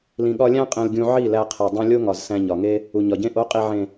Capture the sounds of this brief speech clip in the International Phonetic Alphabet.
l ĩ˨ ɠ ɒ˧ lʲ æ̃˦ qʼ ẽ˧ l ɡʲ ũ˧ ʕ i˦˨ l æ˧ qʰ e˨ dˤ ũ˧ lʲ o˦ ŋ ɒ˨ z s æ̃˧ ɲ ɒ˨ ŋ e˦ | u˨ ɲ ɒ˨ ɟ ẽ˦ ʔ o˨˦ qʼ i˨ ʕ ẽ˨

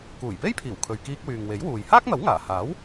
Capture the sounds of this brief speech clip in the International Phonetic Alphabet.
k uː˨˩ j p e˥ j pʰ iː˨˩ w kʰ ɵ˨ ɥ k iː˧ k̚ w yː˨ ŋ w e˨˥ j w uː˨ j h aː˥ k̚ n̪ ɐ˨˥ w ŋ aː˨˩ h aː˨˥ w

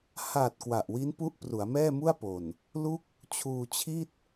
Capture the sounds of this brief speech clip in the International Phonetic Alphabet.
h a˨˩ t̚ k w a˨˩ ʔ w i˦˥ n p u˦˥ ʔ p r u˩˦ a̯ m ɛː˥˩ m u˥˩ a̯ p o˨˩ n | l u˥˩ k̚ | t͡ɕʰ uː˧ t͡ɕʰ i˥˩ t̚

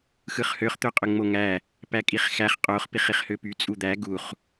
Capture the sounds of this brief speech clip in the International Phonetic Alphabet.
x ɯ χ h ø χ t̪ ø qʼ ø ŋ͡m o ŋ æ | p æ kʼ i χ x æ χ qʼ o χ p i χ i χ h ø p y t͡sʼ u d̪ æ ɡ u χ

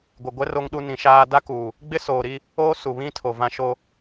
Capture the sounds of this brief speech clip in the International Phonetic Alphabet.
ɡʷ ɪ˨ ɡʷ ɛ˦ r o˦ ŋ ɗ u˦ n ĩ˨˦ ʃ aː˦ d a˦ k uː˨ | ɡ͡b ɪ˦ s oː˨ ɾ i˦ | oː˦ s u˨ β ĩ˦ tʰ o˨ v ã˦ ʃ o˦

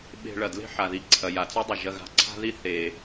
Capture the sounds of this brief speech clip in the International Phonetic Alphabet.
ɓ e̤˧ ɭ ɐ˩ d l e̤˥ ħ a˩ ð i˧ ǀʰ ɐ˩ j a˩ t͡s o˥ dˤ ɐ˩ ʒ ɐ˧ ɣ a̤˧ ǀʰ a̤˥ ð i˥ θ e˩

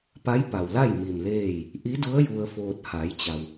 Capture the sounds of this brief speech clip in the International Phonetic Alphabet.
p a˧˥ j p a˩ w l a˥˨ j m i˧˩ m l eː˥˨ j | ʔ i˧˥ d u˧˥ ə̯ j u˧ ə̯ f oː˧ t̚ h a˩˧ j t͡ɕ a˩ w

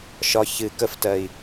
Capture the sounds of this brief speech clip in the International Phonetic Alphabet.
ʃ ɒ ç ɨ k ə f t ɜ i̯

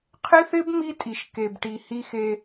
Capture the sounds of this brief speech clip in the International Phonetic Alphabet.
qʰ ɪ˦ θ ɪ˦ b m i˦ tʼ i˨ ʃ k e˨ b ʈ i˨ h i˦ x e˦

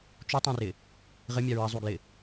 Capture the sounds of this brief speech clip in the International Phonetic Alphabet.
t͡ʃ u tˤ ɐ̃ r ɪ | ʁ ɪ mʲ a ɹ ɐ zˤ u ɡ l ɪ

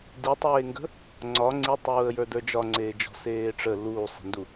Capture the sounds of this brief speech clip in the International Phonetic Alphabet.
d i tˤ eː ŋ ɡ ə̤ | ŋ͡ǀ ɒ ŋ͡ǀ i tˤ uː ə̯ j ə˞ d ə˞ d͡ʒ ɒ ŋ͡ǀ eː d͡ʒ ɔ̤ s eː ʈ͡ʂ ə l uː sˤ e̤ n d u

